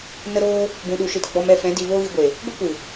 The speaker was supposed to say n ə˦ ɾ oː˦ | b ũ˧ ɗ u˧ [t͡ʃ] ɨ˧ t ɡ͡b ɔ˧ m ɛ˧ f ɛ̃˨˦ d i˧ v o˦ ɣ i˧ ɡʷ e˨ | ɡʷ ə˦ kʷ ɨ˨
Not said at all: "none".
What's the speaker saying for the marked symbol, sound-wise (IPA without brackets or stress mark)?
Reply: ʃ